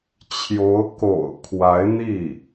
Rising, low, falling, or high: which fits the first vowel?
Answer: rising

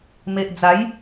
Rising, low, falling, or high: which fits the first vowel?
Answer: low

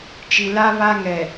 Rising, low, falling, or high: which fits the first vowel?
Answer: low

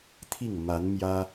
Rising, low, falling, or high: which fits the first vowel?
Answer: falling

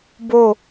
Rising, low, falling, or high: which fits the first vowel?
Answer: falling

